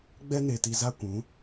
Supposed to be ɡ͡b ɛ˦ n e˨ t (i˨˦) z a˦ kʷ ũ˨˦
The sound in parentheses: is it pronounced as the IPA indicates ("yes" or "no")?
no